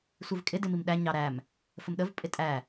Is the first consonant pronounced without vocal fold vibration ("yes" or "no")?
yes